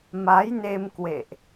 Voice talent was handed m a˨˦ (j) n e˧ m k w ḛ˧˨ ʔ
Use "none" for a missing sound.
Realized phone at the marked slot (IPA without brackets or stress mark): j